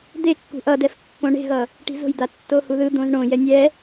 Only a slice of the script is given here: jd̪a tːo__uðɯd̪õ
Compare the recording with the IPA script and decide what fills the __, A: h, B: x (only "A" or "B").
A